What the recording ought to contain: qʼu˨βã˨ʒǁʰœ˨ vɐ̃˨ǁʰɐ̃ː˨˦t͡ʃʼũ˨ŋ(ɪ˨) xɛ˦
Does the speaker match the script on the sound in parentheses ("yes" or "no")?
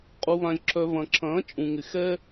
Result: yes